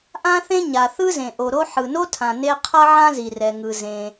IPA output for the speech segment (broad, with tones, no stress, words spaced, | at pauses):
ʔã˥θẽ˥ ɲa˩θɯ˥zẽ˩ ʔo˩ɾo˥ ħɯ˩no˥tʰã˩ ne˥ qʰʌ˥ʕã˥zi˩rɛ˩ ŋɯ˩ zẽ˩